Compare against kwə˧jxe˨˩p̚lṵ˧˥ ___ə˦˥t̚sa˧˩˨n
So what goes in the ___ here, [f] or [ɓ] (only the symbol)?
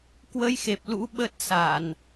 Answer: ɓ